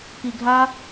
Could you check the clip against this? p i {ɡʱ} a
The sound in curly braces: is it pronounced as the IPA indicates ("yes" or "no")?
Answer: yes